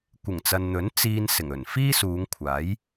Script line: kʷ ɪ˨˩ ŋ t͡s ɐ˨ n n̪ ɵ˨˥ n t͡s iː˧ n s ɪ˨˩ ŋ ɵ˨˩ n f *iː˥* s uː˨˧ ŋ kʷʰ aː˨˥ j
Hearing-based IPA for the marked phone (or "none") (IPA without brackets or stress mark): iː˥